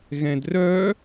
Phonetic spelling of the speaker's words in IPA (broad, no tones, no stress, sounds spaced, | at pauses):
ɣ ɛ̃ d r œ